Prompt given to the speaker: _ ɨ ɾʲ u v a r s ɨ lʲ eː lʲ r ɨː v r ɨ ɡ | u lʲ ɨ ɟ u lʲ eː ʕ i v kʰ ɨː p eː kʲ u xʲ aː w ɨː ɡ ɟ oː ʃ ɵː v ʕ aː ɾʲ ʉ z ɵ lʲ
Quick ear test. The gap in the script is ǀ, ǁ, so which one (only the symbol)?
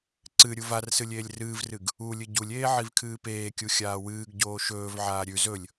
ǀ